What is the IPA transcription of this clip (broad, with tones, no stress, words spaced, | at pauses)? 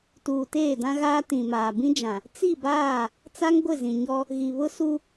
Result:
tuː˨teː˦˨dã˦ɣaː˦ tĩ˨maː˨ bĩ˦d͡ʒã˨ | t͡si˦˨baː˦˨ | t͡sa˦ŋ ɡʷɪ˦˨zĩ˨ɲɔ˦ | ɣi˨βʊ˦ su˦